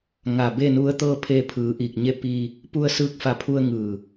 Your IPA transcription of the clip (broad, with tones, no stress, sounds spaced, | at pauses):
ŋ a˧˩ b e˥˨ n u˧˥ ə̯ t̪ ɤː˥˨ pʰ eː˧ pʰ ɯː˩˧ ʔ iː˧˩ k̚ ɲ e˥˨ p iː˧ | p u˧ ə̯ s ɯː˧ k̚ f a˧˩ pʰ u˧ ə̯ ŋ ɯː˧˩